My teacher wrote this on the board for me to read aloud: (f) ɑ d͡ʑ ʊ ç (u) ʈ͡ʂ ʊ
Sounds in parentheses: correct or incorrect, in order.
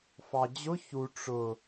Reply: correct, correct

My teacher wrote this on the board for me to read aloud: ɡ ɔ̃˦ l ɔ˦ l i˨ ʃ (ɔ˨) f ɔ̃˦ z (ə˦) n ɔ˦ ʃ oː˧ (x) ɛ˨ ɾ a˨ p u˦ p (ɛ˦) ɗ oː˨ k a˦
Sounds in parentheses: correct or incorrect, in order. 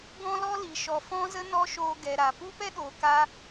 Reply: correct, correct, incorrect, correct

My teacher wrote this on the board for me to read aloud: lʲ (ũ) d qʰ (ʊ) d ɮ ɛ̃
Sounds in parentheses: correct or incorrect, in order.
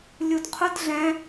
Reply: incorrect, correct

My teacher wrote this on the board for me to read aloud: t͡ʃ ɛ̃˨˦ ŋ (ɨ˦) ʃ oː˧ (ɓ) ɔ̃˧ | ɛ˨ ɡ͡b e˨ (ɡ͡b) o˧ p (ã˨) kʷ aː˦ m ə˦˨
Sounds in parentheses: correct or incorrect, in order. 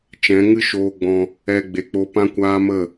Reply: correct, incorrect, incorrect, incorrect

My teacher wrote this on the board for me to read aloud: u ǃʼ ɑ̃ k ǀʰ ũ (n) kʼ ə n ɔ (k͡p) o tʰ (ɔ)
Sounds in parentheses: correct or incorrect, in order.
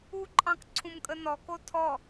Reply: incorrect, incorrect, correct

